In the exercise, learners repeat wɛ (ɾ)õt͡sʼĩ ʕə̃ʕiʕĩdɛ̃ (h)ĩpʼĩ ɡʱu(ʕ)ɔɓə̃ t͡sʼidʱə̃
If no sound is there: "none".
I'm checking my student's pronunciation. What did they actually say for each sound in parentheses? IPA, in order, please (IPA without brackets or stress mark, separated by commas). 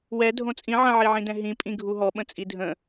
dʱ, ɦ, ɦ